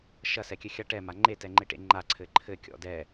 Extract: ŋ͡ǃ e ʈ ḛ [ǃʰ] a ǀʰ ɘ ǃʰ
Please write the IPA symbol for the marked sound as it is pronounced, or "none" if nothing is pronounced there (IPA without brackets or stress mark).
ŋ͡ǃ